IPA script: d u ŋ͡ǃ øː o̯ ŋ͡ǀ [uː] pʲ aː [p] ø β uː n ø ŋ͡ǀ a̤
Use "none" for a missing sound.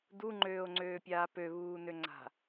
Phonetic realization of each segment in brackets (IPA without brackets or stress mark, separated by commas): øː, p